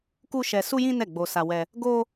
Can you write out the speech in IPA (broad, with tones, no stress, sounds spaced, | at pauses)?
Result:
k u˦ ʃ ɛ˧ s u˦ j ĩ˦ n ɛ˦˨ ɡ͡b o˧ s a˧ w ɛ˧ | ɡ o˦